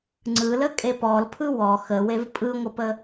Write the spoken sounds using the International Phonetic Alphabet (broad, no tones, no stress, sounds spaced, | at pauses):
ŋ͡ǀ ɯ l ə kʼ e p ɔ l pʰ ɯ w ɔ x ə w e v pʼ ɯ ŋʷ ə p ə